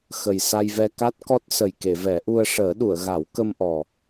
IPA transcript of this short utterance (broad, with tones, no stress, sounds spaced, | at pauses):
x ə˨˩ j s a˧ j v ɛ˧ k a˦˥ t̚ k ɔ˦˥ t̚ s ə˨˩ j k e˨˩˨ v ɛ˨˩˦ ʔ u˧ ə̯ ʂ əː˨˩˦ ɗ u˨˩˨ ə̯ ɣ a˨˩˦ w k ə˧ m ʔ ɔ˨˩